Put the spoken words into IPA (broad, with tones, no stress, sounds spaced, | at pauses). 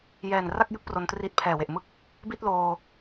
j ɛː˨˩ n r a˥˩ k̚ j ɯ˦˥ k̚ p r o˧ n t r i˦˥ t̚ pʰ ɛː˨˩ w e˨˩ ʔ m ɯ˦˥ k̚ | b i˥˩ t̚ l oː˧